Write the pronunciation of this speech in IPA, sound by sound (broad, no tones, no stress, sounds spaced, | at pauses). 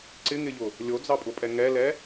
ǀ ɪ ŋ ɪ ʎ ʊ | lʲ o d͡z ɑ pʼ ʊ pʼ ɛ ŋ ɛ l ɛ